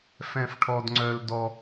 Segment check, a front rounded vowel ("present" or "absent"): present